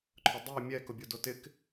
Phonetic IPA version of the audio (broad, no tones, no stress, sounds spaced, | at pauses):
ǃʰ ʊ dˤ i mʲ ɛ k ʊ bʲ o d o t ɪ k